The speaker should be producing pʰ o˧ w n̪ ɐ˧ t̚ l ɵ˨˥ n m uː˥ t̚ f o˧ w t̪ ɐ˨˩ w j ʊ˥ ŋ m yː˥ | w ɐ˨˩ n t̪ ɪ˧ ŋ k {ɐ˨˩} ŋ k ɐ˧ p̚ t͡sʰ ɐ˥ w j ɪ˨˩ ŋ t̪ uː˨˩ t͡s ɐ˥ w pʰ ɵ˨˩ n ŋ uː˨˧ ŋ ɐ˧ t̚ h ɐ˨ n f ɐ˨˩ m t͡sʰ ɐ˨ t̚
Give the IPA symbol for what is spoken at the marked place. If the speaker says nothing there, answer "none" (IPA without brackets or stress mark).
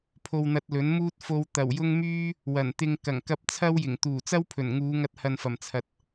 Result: ɐ˨˩